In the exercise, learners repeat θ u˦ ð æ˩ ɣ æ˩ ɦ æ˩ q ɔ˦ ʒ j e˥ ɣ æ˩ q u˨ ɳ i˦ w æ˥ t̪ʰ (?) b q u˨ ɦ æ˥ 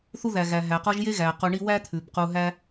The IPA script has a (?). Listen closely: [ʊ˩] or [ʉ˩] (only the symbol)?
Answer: ʉ˩